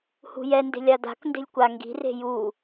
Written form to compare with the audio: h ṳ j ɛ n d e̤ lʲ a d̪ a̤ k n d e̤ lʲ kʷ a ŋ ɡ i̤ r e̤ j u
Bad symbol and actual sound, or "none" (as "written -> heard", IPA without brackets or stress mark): none